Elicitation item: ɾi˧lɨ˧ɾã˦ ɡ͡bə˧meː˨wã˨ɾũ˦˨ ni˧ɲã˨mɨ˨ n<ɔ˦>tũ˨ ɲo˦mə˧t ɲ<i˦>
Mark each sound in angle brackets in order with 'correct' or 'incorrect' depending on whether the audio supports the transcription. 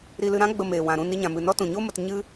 correct, incorrect: ɨ˦

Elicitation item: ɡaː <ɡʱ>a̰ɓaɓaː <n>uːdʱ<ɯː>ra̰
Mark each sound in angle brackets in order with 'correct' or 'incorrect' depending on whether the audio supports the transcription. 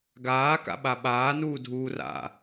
incorrect: k, correct, incorrect: uː

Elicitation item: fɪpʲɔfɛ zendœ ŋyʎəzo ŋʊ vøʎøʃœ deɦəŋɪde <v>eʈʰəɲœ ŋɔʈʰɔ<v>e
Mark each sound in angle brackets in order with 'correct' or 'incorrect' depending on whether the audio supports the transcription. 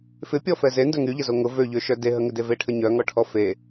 correct, incorrect: f

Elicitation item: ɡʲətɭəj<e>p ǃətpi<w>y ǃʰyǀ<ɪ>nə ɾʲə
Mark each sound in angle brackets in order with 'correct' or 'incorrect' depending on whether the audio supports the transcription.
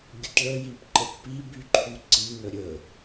incorrect: i, incorrect: b, incorrect: i

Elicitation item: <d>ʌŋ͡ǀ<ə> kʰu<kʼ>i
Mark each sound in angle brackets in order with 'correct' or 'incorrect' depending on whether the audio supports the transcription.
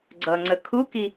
incorrect: ɡ͡ǀ, correct, incorrect: k

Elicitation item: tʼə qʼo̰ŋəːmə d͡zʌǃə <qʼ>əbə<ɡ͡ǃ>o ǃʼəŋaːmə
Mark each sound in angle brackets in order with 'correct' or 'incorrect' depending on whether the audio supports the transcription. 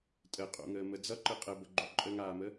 correct, correct

